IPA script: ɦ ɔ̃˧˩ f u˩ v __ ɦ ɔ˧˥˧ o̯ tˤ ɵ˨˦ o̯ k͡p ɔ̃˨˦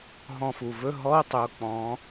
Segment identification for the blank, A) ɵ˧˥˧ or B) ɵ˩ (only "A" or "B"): A